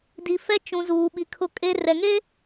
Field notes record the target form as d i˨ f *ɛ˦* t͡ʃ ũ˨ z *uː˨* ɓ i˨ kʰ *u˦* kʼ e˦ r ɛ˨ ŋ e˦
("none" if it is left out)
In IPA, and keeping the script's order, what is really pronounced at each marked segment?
ɛ˦, uː˨, ʊ˦

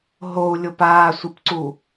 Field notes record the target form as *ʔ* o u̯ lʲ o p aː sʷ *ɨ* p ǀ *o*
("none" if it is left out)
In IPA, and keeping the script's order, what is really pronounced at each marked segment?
ɦ, ɨ, u

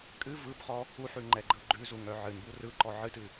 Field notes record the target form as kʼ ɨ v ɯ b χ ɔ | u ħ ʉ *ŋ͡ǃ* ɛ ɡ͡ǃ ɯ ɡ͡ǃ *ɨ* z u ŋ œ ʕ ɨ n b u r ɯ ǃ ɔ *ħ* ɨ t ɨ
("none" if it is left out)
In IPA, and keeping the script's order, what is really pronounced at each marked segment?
ŋ͡ǃ, ʉ, ʕ

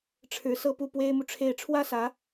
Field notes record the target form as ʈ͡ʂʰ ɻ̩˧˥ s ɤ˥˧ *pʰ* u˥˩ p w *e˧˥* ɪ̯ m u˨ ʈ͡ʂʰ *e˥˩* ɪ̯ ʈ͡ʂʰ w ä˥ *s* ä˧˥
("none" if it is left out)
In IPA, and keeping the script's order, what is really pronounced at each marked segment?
p, e˥, e˥˩, s

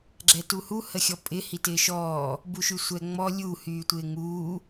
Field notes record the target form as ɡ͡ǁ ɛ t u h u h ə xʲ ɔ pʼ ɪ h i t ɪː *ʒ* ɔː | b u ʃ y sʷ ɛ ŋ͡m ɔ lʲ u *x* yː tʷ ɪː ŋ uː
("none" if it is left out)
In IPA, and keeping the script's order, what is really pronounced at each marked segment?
ʃ, h

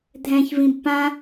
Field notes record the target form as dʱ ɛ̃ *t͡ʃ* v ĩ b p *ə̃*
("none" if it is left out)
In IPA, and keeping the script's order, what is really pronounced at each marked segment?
ç, ã

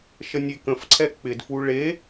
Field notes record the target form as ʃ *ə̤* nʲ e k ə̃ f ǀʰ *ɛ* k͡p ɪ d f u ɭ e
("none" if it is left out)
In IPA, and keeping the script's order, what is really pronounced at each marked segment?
ə, ɛ

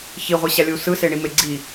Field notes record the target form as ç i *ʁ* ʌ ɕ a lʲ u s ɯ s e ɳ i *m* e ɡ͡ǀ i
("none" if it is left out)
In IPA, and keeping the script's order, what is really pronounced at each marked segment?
ʁʷ, m

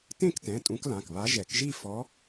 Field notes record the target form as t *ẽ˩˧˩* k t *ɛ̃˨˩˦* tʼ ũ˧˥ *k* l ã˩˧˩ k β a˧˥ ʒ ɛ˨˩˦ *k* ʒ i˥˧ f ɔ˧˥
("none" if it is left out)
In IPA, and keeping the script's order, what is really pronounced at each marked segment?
ẽ˥˧, ɛ̃˩˧˩, k, k

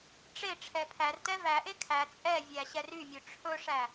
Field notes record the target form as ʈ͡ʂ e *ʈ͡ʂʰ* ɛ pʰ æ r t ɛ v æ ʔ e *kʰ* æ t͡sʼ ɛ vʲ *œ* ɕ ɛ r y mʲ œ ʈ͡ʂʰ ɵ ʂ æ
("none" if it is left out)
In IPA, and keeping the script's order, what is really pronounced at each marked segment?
ʈ͡ʂʰ, kʰ, æ

